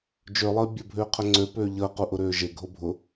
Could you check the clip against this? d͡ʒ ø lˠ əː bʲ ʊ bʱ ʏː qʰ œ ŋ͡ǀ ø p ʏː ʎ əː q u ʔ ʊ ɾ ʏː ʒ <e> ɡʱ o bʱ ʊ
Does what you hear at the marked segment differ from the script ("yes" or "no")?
no